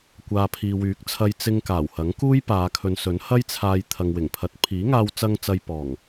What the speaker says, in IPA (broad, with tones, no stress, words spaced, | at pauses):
kʷaː˨pʰiː˨wyː˨˥k̚t͡sʰɐ˧j t͡sɪ˧ŋ kaː˨˩whɐ˨˥ŋkuː˥j paː˨˧kʰɵ˨nsɵ˨˥n hɐ˥jt͡sʰaː˧j t̪ʰɐ˨ŋwɪ˨˩ŋpʰɐ˨˥t̚ pʰiː˨˥ŋaː˧wt͡sɐ˧ŋt͡sɐ˨j pɔː˨˩ŋ